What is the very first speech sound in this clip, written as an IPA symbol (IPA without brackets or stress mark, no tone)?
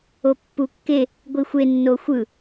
o